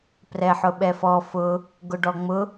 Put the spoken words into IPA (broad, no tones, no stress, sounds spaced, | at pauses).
p r ɛ ħ ʊ ɓ ɛ f ɔ f ʊ | ɡ ʊ ɖ ɔ ŋ͡m ʊ